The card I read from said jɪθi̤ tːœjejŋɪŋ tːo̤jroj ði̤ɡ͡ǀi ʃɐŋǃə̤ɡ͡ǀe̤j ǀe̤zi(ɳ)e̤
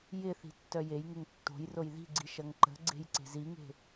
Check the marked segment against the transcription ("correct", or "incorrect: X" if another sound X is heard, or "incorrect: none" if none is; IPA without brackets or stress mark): incorrect: ŋ